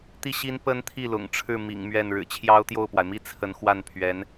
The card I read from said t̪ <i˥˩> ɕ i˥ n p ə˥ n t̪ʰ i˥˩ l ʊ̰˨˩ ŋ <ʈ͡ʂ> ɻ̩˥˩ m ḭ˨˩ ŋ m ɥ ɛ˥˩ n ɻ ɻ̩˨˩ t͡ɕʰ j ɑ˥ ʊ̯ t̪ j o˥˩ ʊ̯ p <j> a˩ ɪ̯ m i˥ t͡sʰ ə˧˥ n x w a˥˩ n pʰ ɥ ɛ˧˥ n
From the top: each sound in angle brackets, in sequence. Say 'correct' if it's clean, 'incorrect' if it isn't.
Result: correct, incorrect, incorrect

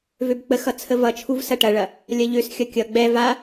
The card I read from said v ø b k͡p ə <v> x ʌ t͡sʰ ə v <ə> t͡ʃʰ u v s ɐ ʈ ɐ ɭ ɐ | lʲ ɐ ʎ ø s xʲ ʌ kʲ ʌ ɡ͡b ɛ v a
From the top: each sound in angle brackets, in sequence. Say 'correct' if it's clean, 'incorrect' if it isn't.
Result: incorrect, incorrect

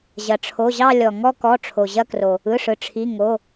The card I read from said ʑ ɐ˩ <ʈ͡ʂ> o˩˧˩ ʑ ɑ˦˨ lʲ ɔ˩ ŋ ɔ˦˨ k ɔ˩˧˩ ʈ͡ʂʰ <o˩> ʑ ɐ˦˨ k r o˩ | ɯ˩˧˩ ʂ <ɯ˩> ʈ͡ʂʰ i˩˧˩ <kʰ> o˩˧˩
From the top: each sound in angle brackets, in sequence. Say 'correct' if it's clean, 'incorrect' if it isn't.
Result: incorrect, correct, correct, incorrect

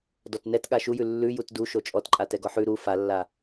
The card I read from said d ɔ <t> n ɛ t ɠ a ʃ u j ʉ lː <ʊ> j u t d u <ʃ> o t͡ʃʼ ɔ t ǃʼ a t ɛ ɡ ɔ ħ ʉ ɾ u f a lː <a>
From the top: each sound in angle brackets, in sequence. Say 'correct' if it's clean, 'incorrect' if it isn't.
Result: correct, incorrect, correct, correct

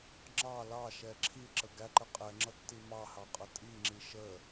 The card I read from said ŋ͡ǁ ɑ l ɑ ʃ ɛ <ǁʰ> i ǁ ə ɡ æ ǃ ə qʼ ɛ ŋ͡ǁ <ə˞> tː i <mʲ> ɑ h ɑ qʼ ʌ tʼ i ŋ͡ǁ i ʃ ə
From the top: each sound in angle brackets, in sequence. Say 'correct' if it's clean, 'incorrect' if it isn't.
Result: correct, incorrect, incorrect

